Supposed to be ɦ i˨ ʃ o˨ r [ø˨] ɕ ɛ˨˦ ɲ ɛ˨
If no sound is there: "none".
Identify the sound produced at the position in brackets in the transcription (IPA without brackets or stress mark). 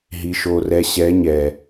ɛ˨